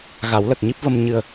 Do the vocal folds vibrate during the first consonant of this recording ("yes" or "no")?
yes